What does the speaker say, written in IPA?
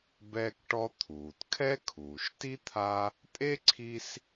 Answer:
bɛː˦kʈɔ˦ t̪ʰuː˩tkʰɛ˥ kʰuː˩ʃti˥t̪ʰa˦ | tʼe˥ǀʰi˦s

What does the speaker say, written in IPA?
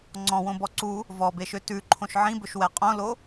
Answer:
ŋ͡ǀɔ̃wõbɔ ǀu | vɔbeʃø tʉǃʰõʃ ʕĩbɵʃwɛ qʼõlo

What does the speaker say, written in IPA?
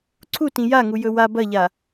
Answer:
ǀʰutĩ jaŋu jɵwa bɐʎa

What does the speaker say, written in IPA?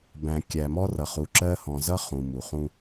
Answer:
bæ̃˨ kʲæ˨mɔ˦rʌ˨ χu˨ǁɜ˦hɔ̃˨ zʌ˦ χũ˨ mu˨χũ˦

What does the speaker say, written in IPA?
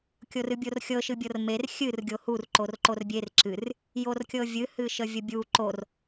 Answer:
kʲorɨbʲorxʲɤ ʃɨbʲɤrmer xʲɨr ɡʲohur ǃorǃorbʲer ǁɨr | jorkʲɤvʲɨ hɨʃəvʲəbʲu ǃor

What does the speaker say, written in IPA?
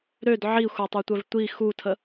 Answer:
ɾød ʕixʷatˤøtʷœv tʷi xutʰə

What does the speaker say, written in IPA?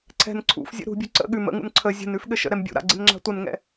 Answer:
ǀʰɛ̤n ǀʰṵfzʲə̰ ɾṳbʲṳ ǀə̰ ɠʉm ə̰ŋṵn ǀʰə zʲə̤nʉf ɠɘʃə̰ɾɛm bʲṵɾa̰ ɡ͡ǀɪnŋ͡ǁa̤tʷənŋɛ̰

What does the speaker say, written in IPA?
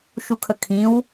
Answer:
ʃukʰəkʰĩw

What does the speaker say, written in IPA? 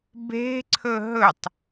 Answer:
be̤ǀʰɵ ɦɵtˤ

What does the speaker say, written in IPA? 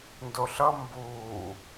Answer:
ndoɬʌ mbuː

